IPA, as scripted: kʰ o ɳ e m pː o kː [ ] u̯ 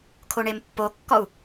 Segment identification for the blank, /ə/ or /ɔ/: ɔ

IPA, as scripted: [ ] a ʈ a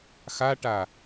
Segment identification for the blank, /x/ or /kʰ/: x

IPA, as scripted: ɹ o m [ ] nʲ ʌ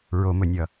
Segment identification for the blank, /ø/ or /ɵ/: ɵ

